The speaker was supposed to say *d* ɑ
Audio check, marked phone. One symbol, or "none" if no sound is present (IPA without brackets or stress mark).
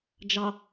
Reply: d͡ʒ